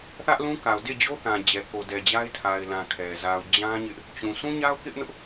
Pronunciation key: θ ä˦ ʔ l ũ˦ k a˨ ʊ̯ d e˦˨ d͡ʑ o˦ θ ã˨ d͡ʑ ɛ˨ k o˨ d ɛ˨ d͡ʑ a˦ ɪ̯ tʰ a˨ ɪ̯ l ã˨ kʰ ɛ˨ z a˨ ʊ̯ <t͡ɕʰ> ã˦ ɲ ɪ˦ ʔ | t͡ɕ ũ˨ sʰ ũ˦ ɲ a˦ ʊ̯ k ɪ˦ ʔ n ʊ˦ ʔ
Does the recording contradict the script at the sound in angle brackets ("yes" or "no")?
yes